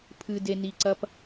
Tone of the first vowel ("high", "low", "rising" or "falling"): low